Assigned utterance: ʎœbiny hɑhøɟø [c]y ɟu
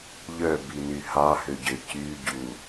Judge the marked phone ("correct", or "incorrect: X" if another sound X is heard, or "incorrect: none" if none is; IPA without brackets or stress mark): correct